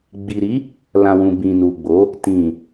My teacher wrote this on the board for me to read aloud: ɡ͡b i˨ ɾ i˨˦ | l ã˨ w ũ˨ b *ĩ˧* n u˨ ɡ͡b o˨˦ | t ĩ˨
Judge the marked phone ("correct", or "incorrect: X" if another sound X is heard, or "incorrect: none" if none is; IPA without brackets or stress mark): incorrect: ĩ˨